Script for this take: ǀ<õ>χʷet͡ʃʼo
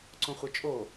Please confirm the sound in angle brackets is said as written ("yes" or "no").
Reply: yes